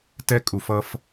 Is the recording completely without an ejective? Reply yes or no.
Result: no